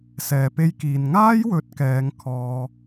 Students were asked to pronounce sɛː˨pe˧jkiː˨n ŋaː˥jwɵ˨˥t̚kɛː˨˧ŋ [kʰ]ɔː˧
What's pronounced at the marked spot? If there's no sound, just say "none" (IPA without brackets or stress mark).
kʰ